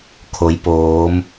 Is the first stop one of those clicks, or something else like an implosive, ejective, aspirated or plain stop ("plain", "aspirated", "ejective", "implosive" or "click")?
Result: aspirated